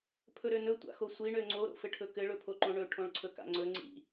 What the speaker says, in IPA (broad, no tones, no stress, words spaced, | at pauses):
pʰɵɾønɵ tʷa̰xosʷi ɳøŋ͡ǀo ɾo̰fɘʈʰɵkɘ ɭɵpʰoǃõɳɵ ʈʰõɭǀʰɵka̰ŋ͡ǀɵ ŋ͡ǀḭ